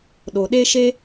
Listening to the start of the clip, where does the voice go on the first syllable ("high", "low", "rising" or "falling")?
low